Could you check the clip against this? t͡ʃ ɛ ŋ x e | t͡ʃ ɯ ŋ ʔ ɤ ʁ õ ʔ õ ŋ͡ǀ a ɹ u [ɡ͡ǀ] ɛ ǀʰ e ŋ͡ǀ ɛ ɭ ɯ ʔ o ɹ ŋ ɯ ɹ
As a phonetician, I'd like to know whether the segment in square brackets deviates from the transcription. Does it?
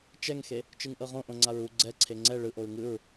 no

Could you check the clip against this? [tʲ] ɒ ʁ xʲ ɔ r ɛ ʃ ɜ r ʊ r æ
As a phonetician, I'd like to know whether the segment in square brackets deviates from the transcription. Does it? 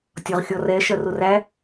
no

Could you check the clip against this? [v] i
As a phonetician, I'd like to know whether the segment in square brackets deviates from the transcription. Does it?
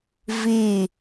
no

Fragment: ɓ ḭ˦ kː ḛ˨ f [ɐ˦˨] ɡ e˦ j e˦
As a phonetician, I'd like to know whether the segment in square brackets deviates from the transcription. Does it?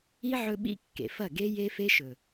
no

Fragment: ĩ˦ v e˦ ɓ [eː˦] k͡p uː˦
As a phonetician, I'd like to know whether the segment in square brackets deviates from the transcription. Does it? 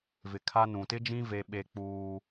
yes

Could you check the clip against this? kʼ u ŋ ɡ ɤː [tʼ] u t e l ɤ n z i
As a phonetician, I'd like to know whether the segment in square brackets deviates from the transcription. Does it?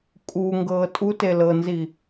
no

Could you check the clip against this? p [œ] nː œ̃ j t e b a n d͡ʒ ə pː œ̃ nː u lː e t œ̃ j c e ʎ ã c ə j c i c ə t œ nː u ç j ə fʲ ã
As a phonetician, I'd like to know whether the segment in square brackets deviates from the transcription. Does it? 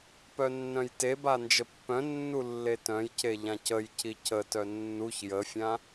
no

